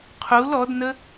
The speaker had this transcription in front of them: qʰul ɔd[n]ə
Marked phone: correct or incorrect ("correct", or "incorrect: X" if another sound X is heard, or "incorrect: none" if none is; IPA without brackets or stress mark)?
correct